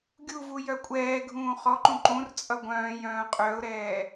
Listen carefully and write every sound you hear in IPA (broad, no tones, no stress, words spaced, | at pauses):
ɡʲuvu jœkʷʼɛːɡʱũː χɔǃũ ǃũr t͡sʼʌɡʷœ̃ːjœ̃ː qʼœʊ̯ɾɛː